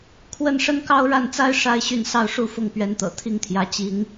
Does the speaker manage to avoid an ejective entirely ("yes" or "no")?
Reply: yes